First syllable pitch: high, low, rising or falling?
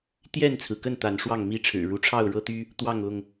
falling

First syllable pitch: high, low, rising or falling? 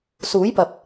rising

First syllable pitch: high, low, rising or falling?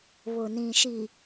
low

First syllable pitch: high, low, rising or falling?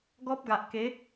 high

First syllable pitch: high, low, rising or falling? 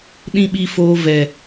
high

